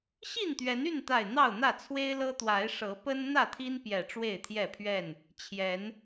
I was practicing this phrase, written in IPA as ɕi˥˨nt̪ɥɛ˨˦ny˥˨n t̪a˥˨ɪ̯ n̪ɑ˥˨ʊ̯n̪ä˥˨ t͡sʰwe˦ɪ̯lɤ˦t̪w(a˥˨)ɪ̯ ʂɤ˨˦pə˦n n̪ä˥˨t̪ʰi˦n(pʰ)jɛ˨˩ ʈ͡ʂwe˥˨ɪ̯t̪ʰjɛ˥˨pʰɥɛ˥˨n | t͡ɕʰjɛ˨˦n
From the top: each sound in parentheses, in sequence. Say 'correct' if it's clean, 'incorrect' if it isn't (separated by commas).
incorrect, incorrect